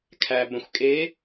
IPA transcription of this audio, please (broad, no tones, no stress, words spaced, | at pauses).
kʰæ bə̃xʷ kʼe